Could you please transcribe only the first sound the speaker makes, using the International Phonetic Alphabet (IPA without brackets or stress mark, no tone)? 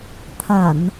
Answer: t̪ʰ